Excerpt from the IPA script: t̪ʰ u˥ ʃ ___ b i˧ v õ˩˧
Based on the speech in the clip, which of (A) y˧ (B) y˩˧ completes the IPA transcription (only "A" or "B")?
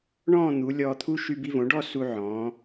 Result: A